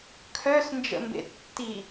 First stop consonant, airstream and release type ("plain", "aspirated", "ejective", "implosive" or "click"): aspirated